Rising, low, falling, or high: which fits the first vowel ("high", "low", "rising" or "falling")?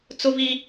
high